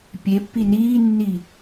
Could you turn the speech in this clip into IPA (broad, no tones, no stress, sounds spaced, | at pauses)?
pʲ e pː i n iː nː i